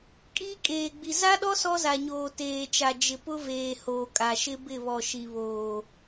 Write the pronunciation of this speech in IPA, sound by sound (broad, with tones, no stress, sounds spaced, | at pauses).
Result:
kʼ iː˦ kʼ eː˨ ɡ͡b i˨ z a˦ ɗ ɔ˦ s ɔ˦ z a˨ ɲ oː˨ t eː˨ t͡ʃ a˨ d͡ʒ ɪ˨ p ʊ˦ v eː˨ h oː˨ kʼ a˨ ʃ ɪ˦ b ɪ˦˨ β ɔ˨ ʃ i˨ β oː˨